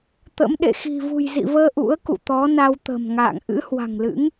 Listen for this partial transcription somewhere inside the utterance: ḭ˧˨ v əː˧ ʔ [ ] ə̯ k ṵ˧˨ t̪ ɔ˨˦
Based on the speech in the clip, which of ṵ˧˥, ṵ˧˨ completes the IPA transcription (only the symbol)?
ṵ˧˥